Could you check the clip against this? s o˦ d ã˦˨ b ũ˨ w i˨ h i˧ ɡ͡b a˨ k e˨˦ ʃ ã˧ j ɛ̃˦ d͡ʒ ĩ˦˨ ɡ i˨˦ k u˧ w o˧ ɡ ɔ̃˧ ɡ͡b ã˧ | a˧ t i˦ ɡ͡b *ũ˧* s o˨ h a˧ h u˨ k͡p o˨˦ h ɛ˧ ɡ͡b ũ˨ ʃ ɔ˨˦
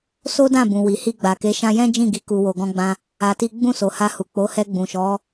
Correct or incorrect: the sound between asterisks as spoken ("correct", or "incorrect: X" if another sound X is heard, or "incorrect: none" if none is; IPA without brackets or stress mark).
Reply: incorrect: ũ˦˨